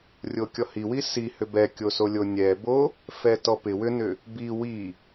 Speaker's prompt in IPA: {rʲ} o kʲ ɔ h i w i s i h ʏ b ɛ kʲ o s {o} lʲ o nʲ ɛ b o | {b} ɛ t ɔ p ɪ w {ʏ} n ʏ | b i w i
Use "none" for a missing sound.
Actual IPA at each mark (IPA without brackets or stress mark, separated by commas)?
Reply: rʲ, o, f, ʏ